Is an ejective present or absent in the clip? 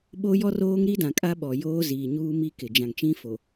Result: present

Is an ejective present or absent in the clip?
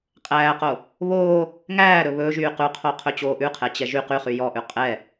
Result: present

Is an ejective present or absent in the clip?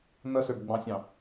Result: absent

